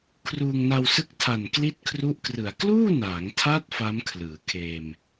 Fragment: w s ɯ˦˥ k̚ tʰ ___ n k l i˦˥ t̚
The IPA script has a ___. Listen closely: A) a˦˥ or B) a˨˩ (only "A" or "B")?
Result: B